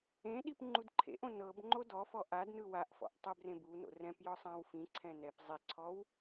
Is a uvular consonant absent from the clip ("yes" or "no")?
yes